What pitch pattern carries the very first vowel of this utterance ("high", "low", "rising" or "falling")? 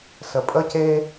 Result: low